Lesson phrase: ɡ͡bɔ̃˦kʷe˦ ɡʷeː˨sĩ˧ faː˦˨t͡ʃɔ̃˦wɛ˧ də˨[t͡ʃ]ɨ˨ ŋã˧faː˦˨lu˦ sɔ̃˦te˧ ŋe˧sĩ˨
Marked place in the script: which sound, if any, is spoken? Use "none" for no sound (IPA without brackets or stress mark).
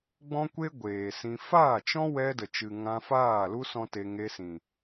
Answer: t͡ʃ